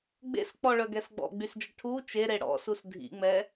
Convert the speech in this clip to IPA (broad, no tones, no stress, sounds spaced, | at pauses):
ɡ͡b ḛ s k͡p ɔ ɭ œ ɡ ɛ s ɡ͡b ɔ̰ ɡ͡b y s d͡ʒ ə ʈʰ u t͡ʃ e ɾ e ɽ ɔ̰ s u s dʱ ḭ ŋ͡m ɛ